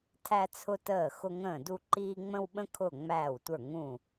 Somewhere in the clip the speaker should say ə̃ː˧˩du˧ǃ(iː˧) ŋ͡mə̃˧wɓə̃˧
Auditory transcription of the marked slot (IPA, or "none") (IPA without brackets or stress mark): iː˧